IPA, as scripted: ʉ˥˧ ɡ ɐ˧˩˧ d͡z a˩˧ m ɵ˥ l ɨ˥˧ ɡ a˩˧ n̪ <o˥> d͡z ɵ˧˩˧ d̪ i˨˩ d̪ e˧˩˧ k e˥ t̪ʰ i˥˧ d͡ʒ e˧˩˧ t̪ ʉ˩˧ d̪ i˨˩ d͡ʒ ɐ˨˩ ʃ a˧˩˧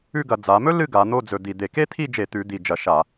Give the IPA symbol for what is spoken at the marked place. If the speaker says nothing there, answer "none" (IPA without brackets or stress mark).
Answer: o˥˧